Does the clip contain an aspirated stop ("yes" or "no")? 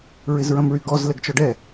no